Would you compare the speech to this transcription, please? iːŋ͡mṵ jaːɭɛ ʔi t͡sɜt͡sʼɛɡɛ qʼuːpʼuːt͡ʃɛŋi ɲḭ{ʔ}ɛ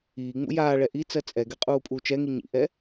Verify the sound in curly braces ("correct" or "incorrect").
correct